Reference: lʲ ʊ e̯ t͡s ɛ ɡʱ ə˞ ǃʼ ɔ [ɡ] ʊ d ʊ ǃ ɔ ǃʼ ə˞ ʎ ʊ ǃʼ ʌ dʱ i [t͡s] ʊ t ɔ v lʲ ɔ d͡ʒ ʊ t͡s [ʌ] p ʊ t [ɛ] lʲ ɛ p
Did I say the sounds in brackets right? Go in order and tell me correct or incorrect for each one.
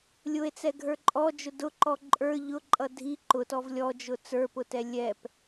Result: incorrect, incorrect, incorrect, correct

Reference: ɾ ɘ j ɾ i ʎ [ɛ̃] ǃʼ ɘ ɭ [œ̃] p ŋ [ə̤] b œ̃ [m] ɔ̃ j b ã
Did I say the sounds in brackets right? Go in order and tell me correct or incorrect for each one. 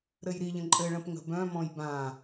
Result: incorrect, incorrect, correct, correct

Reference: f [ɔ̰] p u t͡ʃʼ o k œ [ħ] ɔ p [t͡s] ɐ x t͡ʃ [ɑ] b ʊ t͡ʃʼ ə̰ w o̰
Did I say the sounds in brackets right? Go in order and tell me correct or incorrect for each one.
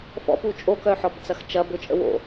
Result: correct, correct, correct, incorrect

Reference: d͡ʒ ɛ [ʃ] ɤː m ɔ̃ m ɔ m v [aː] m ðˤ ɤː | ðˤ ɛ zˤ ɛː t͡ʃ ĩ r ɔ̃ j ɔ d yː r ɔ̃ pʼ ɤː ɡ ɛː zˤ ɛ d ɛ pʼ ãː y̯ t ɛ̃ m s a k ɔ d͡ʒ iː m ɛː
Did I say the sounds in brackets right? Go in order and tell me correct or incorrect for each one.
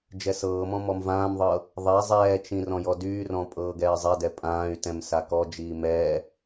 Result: incorrect, incorrect

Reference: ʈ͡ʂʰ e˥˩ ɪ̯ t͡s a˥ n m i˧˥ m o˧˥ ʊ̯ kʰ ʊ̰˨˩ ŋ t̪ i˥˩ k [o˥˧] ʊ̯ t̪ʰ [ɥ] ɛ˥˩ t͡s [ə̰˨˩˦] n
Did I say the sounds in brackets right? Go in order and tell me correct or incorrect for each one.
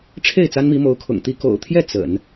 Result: incorrect, incorrect, correct

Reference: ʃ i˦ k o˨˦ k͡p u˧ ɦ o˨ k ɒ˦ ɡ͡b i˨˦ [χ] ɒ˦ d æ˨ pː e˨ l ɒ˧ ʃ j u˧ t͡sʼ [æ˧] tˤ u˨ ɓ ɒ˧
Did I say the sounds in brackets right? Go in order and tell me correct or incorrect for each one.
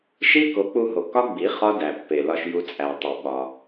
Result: correct, incorrect

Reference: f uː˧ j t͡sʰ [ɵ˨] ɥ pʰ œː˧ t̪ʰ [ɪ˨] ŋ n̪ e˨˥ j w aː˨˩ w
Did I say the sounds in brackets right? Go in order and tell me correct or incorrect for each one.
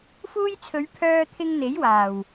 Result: incorrect, incorrect

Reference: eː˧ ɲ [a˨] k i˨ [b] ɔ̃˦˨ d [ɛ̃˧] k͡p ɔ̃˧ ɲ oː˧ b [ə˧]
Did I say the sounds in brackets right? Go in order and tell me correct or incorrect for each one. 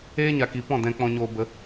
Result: correct, incorrect, correct, correct

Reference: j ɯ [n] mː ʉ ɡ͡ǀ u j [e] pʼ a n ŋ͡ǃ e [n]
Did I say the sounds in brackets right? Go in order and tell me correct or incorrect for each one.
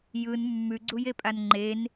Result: correct, correct, correct

